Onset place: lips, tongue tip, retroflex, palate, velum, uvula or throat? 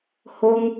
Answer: throat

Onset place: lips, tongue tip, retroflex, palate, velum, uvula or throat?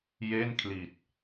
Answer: palate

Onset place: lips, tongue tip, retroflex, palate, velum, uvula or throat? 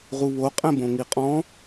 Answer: uvula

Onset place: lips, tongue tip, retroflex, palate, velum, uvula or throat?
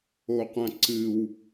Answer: uvula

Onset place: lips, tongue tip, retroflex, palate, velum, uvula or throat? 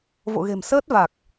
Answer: lips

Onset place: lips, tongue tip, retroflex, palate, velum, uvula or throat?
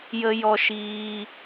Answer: palate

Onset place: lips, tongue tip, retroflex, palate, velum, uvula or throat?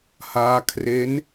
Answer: throat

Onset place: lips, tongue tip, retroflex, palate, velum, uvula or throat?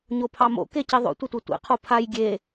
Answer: palate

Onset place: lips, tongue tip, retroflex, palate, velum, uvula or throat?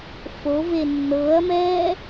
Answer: lips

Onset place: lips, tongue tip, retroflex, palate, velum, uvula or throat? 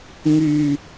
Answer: velum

